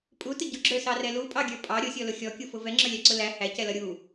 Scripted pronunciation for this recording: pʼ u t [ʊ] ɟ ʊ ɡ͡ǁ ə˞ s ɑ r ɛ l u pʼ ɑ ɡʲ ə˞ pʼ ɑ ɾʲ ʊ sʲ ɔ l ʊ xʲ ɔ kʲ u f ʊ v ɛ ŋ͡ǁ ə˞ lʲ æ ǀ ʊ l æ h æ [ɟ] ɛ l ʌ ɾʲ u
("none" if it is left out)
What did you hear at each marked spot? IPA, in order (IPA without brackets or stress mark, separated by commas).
ə, c